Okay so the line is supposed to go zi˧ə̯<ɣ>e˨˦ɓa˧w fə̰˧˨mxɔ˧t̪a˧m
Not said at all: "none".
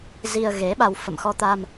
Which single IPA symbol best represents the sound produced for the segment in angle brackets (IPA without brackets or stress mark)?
ɣ